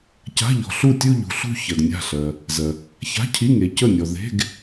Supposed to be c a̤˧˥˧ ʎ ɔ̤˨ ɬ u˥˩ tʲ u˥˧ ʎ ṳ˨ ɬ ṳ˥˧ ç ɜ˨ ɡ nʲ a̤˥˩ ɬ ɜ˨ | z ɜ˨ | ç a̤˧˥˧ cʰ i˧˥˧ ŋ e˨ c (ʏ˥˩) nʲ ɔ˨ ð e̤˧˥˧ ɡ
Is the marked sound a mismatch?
yes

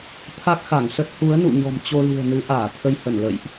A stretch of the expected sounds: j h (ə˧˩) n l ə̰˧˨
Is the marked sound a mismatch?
no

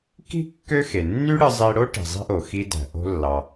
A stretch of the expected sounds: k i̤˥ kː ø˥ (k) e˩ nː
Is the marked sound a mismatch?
yes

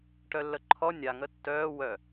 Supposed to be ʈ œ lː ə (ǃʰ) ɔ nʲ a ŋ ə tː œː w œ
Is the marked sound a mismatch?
no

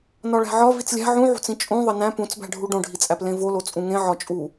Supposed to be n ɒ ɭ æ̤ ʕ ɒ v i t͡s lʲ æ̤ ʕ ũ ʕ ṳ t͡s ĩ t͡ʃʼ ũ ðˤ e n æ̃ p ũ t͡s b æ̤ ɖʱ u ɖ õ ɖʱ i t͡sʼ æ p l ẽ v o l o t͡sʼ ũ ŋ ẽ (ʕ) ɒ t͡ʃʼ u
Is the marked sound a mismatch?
no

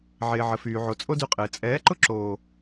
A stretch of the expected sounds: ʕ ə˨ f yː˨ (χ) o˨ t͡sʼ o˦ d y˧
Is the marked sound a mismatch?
yes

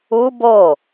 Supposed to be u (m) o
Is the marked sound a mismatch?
yes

